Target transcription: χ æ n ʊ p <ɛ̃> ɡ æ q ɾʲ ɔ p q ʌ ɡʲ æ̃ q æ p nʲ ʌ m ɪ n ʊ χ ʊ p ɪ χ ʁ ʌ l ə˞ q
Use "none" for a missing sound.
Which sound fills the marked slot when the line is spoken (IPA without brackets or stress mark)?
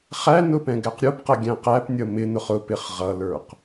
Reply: ɛ̃